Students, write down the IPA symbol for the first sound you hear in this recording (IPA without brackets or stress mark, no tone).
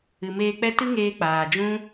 ɨ